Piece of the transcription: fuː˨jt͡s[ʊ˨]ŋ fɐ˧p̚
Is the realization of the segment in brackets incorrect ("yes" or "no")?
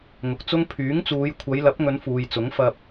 yes